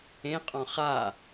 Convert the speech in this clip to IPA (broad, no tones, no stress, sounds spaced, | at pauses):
ẽ qʼ ɔ̃ χ a